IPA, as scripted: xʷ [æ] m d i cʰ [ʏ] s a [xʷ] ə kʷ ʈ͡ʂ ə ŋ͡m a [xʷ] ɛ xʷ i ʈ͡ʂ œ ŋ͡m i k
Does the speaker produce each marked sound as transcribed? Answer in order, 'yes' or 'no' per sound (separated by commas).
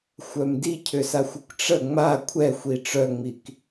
no, yes, yes, no